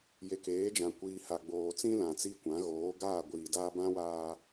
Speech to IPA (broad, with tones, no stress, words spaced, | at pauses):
je˨keː˨˦d͡ʒã˨ kʷiː˨ ha˨ɡ͡boː˨t͡sĩ˦ lã˨t͡si˦kʷã˨˦ ɣoː˨˦ɡaː˦˨ɡʷiː˨daː˦ bã˦waː˦